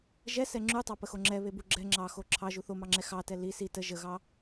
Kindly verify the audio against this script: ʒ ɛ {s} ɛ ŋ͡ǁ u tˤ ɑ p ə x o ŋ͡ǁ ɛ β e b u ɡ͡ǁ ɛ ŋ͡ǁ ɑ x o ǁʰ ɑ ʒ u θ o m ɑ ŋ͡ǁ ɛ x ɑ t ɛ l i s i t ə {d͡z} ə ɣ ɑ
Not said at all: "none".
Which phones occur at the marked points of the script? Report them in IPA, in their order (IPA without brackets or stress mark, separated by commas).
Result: s, ʒ